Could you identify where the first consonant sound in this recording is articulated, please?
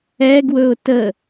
velar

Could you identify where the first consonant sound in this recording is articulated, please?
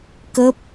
velar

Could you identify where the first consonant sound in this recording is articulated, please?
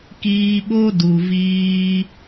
velar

